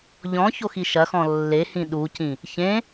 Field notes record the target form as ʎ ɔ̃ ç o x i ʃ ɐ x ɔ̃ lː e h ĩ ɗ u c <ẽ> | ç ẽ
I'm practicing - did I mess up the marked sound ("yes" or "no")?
yes